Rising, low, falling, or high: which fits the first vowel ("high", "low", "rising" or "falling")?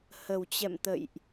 low